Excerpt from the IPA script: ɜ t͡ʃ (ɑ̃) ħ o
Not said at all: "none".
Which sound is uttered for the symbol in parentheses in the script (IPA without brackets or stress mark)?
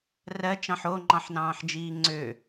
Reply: ɑ̃